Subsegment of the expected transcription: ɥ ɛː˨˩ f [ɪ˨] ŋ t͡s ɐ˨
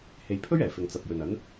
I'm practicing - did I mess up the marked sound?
no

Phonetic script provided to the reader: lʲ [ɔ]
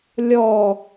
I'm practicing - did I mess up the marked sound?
no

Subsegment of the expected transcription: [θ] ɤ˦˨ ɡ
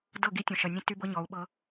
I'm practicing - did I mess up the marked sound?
yes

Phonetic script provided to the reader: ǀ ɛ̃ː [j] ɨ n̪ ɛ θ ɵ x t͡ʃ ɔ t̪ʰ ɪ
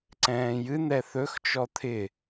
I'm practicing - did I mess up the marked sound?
no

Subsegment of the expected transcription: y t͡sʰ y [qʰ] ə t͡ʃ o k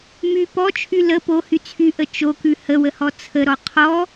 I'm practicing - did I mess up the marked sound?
yes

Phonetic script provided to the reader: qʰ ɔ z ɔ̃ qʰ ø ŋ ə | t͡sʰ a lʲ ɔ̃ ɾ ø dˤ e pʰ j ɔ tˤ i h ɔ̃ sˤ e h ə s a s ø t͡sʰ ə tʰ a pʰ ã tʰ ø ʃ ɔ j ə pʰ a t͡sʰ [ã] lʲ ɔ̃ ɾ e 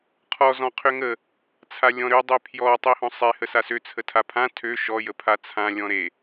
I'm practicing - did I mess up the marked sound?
no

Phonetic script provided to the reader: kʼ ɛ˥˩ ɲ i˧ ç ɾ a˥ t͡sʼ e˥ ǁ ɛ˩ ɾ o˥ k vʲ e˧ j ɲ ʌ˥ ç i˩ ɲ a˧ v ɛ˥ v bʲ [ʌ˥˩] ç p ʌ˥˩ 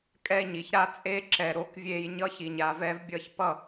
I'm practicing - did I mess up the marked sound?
no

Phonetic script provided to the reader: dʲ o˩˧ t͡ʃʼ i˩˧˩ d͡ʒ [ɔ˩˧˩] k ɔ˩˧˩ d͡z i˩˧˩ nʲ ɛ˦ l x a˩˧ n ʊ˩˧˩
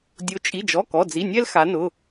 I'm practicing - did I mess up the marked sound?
no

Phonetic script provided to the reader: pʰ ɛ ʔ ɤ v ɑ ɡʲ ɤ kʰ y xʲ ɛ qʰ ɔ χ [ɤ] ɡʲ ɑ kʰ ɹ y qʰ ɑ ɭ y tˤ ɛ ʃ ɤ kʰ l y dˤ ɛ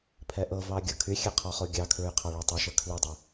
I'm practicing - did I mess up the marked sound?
yes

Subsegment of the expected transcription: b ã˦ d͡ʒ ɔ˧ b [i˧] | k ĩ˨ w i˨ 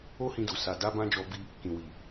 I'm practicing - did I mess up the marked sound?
no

